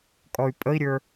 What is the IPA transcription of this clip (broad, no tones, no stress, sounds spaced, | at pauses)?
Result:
kʼ ɔ y̯ pʼ ə i̯ ɾʲ ə˞